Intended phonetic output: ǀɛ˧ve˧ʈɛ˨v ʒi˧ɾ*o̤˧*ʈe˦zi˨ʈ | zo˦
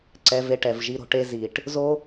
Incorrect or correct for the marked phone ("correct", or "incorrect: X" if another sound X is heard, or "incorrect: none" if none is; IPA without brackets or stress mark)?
correct